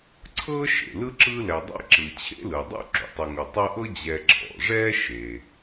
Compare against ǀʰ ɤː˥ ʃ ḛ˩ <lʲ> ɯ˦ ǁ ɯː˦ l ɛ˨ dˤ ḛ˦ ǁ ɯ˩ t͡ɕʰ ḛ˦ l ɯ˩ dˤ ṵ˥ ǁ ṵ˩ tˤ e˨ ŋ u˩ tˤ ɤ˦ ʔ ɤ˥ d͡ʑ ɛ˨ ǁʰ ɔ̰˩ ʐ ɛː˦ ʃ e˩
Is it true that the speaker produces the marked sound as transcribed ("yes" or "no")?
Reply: no